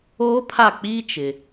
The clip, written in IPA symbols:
oː˦ pʰ a˦˨ k͡p iː˦ t͡ʃ ɪ˨

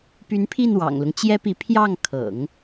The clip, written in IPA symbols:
p y˧˥ n pʰ i˥˩ n w ɑ̰˨˩ ŋ l ʊ˦ ŋ t͡ɕ j ɛ˥ p i˧˥ pʰ j ɑ˥˩ ŋ kʰ ɤ̰˨˩˦ ŋ

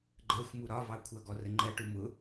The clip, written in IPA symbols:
ɡ͡ǃ ɜ xʷ m u ɾ ɒ v ɑ kʷʰ ʌ ɡ ɔ r ə ŋ͡ǃ ɜ ʈ u m ʊ

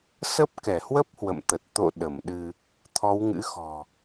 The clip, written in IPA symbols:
s ə˦˥ p̚ k ɛ˧˩ h w ə˦˥ p̚ h w ə̰˧˨ m t̪ ə˨˩ t̚ t̪ o̰˧˨ ɗ ə˧˩ m ɗ ɨ˧ | t̪ʰ ɔ˨˦ w ŋ ɨ̰˧˥ x ɔ̤˨˩

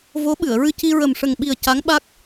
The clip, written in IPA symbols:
v o˧˥ ɓ ɨ˨˩˨ ə̯ ɹ ɨ˧ c i˧ ɹ ə˨˩ m ʂ ə˨˩ ŋ ɓ i˨˩ ə̯ c a˧˥ ŋ ɓ a˦˥ k̚

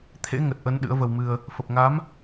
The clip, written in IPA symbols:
t̪ʰ ḛ˧˥ ŋ ə˨˩ t̚ ʔ ə˨˦ n ɗ ɨ̰˧˥ ə̯ v ə˧ w m ɨ˧ ə̯ | f ə˨˩ p̚ ŋ a˨˦ m

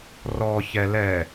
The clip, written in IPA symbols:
r ɔ ç ɛ l ɛ

